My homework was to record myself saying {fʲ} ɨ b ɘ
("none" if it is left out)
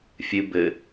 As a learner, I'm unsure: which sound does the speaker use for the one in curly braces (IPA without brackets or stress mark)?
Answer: fʲ